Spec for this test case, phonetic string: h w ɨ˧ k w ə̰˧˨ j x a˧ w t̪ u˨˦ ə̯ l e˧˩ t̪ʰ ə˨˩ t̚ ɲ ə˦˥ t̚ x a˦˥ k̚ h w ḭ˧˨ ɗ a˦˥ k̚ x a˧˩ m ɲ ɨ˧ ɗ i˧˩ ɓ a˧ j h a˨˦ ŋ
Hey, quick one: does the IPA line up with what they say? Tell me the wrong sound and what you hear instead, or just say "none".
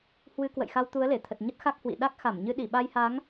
none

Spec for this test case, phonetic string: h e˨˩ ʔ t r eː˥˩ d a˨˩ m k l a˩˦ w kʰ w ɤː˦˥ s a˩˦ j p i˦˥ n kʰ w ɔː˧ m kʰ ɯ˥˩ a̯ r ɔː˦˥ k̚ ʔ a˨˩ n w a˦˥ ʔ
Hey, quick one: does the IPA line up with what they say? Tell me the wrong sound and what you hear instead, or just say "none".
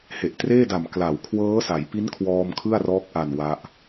none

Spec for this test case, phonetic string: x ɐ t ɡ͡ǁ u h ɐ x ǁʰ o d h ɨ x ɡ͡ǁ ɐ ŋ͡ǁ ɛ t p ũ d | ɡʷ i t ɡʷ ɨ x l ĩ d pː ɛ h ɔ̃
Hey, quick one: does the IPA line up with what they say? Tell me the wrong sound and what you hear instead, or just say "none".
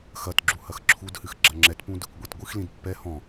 o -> u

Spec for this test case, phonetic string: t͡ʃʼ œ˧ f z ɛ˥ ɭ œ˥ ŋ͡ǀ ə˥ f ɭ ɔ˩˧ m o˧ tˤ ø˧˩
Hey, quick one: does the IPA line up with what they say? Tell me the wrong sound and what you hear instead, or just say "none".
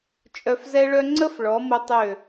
none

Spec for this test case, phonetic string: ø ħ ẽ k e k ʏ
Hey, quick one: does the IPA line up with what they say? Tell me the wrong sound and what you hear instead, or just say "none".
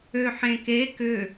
none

